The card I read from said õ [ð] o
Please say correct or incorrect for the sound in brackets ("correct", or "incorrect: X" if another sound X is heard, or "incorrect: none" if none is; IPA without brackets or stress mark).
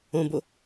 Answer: incorrect: b